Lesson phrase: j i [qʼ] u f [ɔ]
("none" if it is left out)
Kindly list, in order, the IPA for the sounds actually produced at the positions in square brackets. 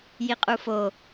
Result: qʼ, o

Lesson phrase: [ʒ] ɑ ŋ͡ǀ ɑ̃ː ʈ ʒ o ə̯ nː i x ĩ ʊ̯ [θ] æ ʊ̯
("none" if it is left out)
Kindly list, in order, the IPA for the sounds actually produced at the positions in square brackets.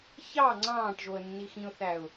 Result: ç, θ

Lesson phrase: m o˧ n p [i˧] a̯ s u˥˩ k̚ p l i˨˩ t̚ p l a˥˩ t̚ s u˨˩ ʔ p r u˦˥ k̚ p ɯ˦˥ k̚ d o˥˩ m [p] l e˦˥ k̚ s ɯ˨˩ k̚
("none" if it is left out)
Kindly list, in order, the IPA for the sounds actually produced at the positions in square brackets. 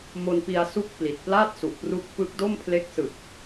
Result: i˧, pʰ

